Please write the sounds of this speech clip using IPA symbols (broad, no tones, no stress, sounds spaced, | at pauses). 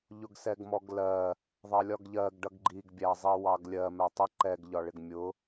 ʎ ʊ ɡ s ɛ ɡ m ɔ ɡ l ɜ | ðˤ ɑ lʲ ɒ ɡ ʎ ɜ ɡ ɖ ʌ ɡ ɡ͡ǃ i ɡ bʲ æ zˤ i w ɑ ɡ lʲ ɜ m ɛ tˤ ə ǃ ɛ ɡ ʎ ɒ ɭ ɪ ɡ mʲ ʊ